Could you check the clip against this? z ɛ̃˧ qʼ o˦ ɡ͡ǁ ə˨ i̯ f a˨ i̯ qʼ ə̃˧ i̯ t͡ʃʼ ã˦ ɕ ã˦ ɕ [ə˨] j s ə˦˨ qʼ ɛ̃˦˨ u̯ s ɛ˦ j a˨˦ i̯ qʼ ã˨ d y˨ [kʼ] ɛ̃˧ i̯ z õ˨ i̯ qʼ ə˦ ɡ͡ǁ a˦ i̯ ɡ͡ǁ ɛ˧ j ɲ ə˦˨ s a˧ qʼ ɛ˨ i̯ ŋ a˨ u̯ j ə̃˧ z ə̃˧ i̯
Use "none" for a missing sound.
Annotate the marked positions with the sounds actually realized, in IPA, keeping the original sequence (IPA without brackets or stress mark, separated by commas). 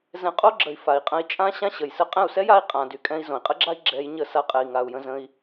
ə˨, kʼ